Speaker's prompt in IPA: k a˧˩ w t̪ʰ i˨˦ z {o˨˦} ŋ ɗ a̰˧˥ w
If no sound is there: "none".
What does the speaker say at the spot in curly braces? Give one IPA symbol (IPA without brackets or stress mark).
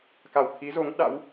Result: o˨˦